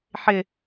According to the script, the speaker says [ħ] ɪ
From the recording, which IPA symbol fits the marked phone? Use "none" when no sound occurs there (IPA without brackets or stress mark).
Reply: ħ